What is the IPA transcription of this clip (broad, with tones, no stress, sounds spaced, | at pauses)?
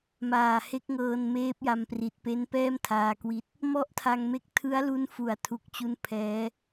m aː˨˩ h e˦˥ k̚ ŋ ɤː˧ n m eː˦˥ p̚ j a˧ m p r i˨˩ t̚ p e˦˥ n p ɛː˥˩ m tʰ aː˧ k w i˦˥ t̚ | m ɔ˥˩ ʔ tʰ a˧ ŋ m e˥˩ k̚ tʰ ɯ˦˥ a̯ l u˦˥ n f u˨˩ a̯ tʰ u˦˥ k̚ t͡ɕ u˥˩ n pʰ ɛː˦˥